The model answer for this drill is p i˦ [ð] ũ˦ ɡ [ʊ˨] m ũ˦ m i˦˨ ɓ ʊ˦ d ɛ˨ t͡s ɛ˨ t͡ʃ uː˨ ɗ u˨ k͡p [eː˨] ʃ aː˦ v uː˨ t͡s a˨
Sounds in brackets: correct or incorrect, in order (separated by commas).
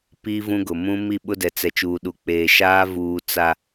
incorrect, correct, correct